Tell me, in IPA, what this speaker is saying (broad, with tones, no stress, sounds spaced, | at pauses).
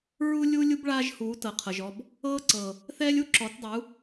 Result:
ɹ u˦ lʲ uː˦ lʲ u˦ b ɭ aː˦ ʒ h uː˨˦ t ɤ˨ qʰ ɤ˨ ʒ ɔ˧ b | ɤː˦ ǀ ɤ˨ | θ ɛː˦ lʲ u˦ ǁ ɔ˨˦ t dˤ u˨˦